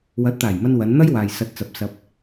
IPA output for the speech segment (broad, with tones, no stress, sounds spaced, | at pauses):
w ɐ˨˥ t̚ t̪ aː˨˩ j m ɐ˧ n w ɐ˨˧ n n̪ ɐ˥ j w aː˨ j s ɐ˧ t̚ t͡s ɐ˨ p̚ s ɐ˨ p̚